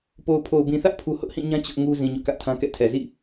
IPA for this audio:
p o˨ ʊ̯ pʰ o˨ ʊ̯ b ĩ˨ θ ä˦ ʔ pʰ u˦ h ʊ˦ ʔ h ĩ˦˨ ɲ ã˦ t͡ɕ ʊ˦ ʔ ŋ u˦ z ĩ˨ ɲ ʊ˦ ʔ k ä˦ ʔ tʰ ã˦ k ɛ̰˦˨ tʰ ɛ˨ z ḭ˦˨

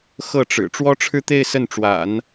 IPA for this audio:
x ɤ˥˩ ʈ͡ʂ ɻ̩˨˩ ʈ͡ʂ w ɔ˥ ʈ͡ʂʰ ɻ̩˥˧ t̪ e˥˧ ɪ̯ s ə˥˩ n ʈ͡ʂ w a̰˨˩˦ n

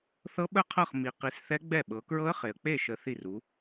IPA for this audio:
θ ɤ˦˥ ɓ ə˥˩ qʰ ɤ˥˩ χ m i˨ q i˨˥ s θ ɛ˦˥ ɡ͡b ɛ˥˩ ɓ ɤ˨˥ k ɹ ɤ˦˥ ə̯ χ e˨ ə̯ k͡p e˥˩ ʃ ə˨˥ θ i˥˩ r u˨˥

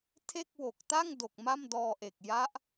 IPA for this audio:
tʰ e˥˩ k̚ w o˨˩ k̚ t a˥˩ ŋ d o˨˩ k̚ m a˥˩ m d ɔː˧ ʔ e˨˩ k̚ j a˦˥ ʔ

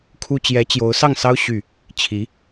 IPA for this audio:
kʰ u˥ t͡ɕ j ɛ˧˥ t͡ɕ j o˧˥ ʊ̯ s ɑ˥˩ ŋ s ɑ˥ ʊ̯ ɕ y˥˩ | t͡ɕʰ i˧˥

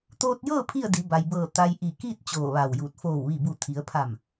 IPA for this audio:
t̪ oː˧ t̚ j ɤː˥˨ pʰ i˥˨ ə̯ d i˩˧ b a˩ j b ɤː˧˩ t̪ a˧ j ʔ i˧˩ k iː˥˨ t̚ t͡ɕ oː˧˩ ʋ a˧˩ w j uː˧˩ t̚ f oː˧˩ w ʋ i˧˩ b u˧˩ t̪ʰ i˩˧ ə̯ pʰ a˧˩ m

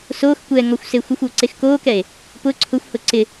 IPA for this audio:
s oː x kʷ ɛː ŋ ɔ xʷ s e xʷ ɪ xʷ o ǀ e x k oː k ɛ e̯ | p ʊ ǀʰ ʊ xʷ h ʊ ǀ ɪ

